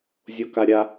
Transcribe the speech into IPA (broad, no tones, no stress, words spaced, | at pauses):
zʲokaɾʲa